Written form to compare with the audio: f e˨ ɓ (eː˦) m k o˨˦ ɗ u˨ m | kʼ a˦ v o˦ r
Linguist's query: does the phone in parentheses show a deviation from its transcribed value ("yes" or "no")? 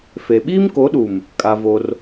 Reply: yes